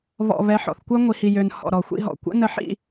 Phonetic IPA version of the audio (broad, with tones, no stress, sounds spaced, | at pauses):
β ɔ̰˨ β ɛ˨˦ ħ ɔ̰˨ θ kʷ œ˦ ŋʷ i˨ h i˨ j ø˨ n h ɔ̰˨ ɾ ɔ˨ xʷ ḭ˦ ɦ ɔ̰˨ kʷ ə̰˦ n ə˨˦ ħ ḭ˦˨